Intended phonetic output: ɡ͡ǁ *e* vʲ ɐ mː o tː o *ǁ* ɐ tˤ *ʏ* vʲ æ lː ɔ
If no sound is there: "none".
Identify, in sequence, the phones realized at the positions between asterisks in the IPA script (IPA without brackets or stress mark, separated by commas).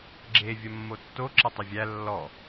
e, ǁ, ʏ